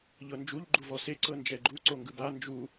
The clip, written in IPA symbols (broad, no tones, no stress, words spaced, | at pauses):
ʎɤnd͡ʒuʎ ɡ͡ǃuvɔse ǀɤnd͡ʒɛɡ͡ǃu ǀoŋɡɯba nd͡ʒu